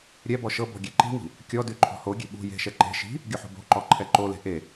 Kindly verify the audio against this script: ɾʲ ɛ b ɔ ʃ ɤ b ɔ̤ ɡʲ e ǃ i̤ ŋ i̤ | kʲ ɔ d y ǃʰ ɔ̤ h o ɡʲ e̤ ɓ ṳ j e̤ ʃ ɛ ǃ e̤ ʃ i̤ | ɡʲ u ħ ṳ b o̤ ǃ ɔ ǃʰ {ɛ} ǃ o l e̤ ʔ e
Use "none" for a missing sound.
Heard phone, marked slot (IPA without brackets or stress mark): ɛ